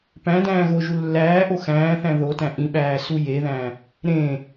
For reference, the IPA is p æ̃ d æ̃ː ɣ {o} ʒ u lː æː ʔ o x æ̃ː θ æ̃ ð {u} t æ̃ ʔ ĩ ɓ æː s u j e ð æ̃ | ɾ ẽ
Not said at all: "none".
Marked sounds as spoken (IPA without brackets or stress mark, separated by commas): o, o